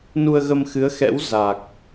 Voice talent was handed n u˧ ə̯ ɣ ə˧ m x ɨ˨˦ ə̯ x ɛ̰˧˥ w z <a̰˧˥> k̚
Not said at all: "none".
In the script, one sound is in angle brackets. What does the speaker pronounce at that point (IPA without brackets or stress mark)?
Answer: a˨˩